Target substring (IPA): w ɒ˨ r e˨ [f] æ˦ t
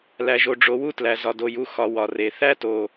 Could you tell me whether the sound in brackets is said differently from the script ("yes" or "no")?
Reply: yes